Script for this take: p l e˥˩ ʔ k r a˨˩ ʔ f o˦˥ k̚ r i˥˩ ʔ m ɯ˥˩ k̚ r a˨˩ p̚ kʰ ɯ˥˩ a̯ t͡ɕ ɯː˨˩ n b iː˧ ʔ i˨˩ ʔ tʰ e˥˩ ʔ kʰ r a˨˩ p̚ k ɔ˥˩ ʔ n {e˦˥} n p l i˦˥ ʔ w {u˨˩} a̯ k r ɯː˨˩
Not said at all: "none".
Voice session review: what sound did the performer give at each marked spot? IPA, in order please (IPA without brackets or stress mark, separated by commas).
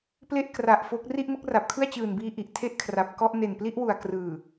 e˨˩, u˨˩